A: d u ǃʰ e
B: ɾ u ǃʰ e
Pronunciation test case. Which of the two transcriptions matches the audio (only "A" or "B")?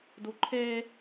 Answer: A